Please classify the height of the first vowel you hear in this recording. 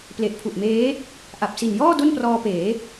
mid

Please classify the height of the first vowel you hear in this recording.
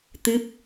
high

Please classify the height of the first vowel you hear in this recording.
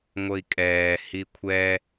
mid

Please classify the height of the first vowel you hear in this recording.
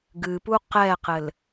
high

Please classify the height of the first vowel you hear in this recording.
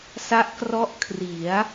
low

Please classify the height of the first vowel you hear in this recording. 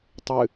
high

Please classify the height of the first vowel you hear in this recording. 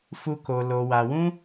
high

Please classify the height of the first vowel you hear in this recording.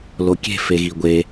mid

